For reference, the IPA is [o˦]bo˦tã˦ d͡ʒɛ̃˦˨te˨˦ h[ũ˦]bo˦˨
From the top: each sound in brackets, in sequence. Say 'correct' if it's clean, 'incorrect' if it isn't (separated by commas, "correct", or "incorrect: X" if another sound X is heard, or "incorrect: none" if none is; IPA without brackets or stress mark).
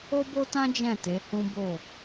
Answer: correct, correct